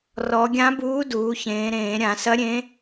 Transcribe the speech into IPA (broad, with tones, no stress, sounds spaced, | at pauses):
r ɔ˩˧ ɡʲ ã˧˥ b uː˧˥ d uː˩˧ ç ẽː˩˧ ɾ ẽː˧˩˧ ɾʲ ã˧˩˧ s ɐ˧˥ ɾʲ ẽ˧˥